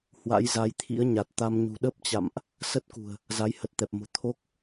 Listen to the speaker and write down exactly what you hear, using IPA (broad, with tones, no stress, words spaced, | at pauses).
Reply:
hwa̰˧˥jza˨˦jt̪ʰḭ˧˥ə̯ɲa˨˩t̚ t̪a˧mɲṳ˨˩ ɗə˦˥p̚t͡ɕa̰˧˨mʔ | sə˦˥t̚kṳ˨˩ə̯ | za˨˦jhə˨˩t̚ t̪ɛ˨˩p̚mo̤˨˩ t̪ʰo˦˥k̚